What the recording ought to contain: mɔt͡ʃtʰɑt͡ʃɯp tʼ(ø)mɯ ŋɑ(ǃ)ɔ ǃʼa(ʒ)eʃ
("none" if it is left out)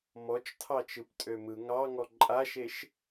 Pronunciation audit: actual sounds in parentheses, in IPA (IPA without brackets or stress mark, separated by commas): ø, ŋ, ʃ